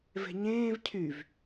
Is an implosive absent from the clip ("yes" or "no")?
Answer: yes